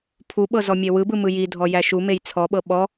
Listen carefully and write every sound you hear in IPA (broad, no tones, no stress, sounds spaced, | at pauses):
pʰ u ɓ ɤ z ɔ mʲ e w ɯ b ɯ m ɯ j i dʱ ɔ j æ ʃ u m e j t͡sʰ ɔ ɓ ɤ ɓ ɔ